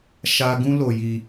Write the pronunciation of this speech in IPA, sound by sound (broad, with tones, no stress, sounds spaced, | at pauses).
ʃ a˦ ɡ ũ˦ l o˧ j i˧